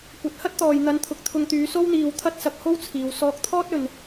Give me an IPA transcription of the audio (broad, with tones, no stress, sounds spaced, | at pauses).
kʷ ɐ˨˥ t̚ h ɐ˥ t̚ t̪ ɔː˨ j n̪ ɐ˨˧ n t̪ʰ ʊ˨ k̚ t̪ʰ ʊ˧ ŋ t̪ yː˨˧ s o˥ w n̪ iː˧ w t̪ʰ ɐ˥ t̚ s ɐ˧ k̚ h o˥ w t͡sʰ iː˨ w s ɔː˧ k̚ t̪ʰ ɔː˥ t̚ ɵ˨ n